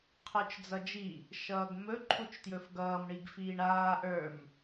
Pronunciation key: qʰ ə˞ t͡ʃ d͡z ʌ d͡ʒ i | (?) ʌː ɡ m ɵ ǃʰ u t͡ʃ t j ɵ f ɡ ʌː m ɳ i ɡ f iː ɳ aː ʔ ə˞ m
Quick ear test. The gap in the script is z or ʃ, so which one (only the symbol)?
ʃ